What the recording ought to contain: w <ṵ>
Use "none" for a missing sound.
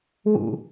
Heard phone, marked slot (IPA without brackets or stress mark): ṵ